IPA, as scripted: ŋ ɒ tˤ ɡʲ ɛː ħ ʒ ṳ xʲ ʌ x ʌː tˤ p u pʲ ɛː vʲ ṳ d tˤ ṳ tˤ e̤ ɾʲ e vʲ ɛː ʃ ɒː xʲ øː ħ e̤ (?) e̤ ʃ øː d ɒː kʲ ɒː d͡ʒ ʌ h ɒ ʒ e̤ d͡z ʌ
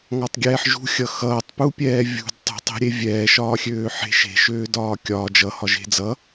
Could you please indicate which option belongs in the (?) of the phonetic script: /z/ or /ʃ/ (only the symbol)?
ʃ